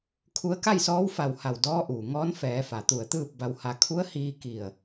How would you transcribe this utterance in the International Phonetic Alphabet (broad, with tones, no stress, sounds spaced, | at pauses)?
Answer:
kʰ u˧ ə̯ k a˥˨ j s ɔː˧˥ w f a˧˩ w h a˧˩ w d ɔː˧˥ ʔ uː˩ ŋ ɔː˧˥ n f ɛː˩˧ f a˩ t̪ u˧˩ ə̯ t̪ ɯː˥˨ p̚ b a˧ w h a˧ kʰ u˧˥ ə̯ h iː˧ k i˧˩ ə̯